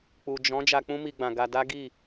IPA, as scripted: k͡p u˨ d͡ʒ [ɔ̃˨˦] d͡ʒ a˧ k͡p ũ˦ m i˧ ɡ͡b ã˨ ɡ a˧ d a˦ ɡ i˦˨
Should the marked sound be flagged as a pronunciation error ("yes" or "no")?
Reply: no